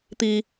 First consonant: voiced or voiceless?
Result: voiceless